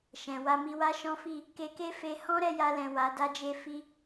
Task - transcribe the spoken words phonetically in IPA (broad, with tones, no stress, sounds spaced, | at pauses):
ʃ ɛ̃˨ w a˧ m i˧ w a˦ ʃ ɔ̃˦ f i˦˨ | k e˧ k e˦ f e˧ h ɔ̃˦ ɾ ɛ˧ j a˧ l ɛ̃˨ w a˨˦ d a˦ d͡ʒ e˦ f i˧